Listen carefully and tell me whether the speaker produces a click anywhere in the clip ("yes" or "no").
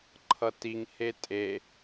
yes